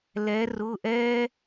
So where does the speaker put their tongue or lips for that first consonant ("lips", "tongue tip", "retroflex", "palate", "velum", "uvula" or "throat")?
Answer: tongue tip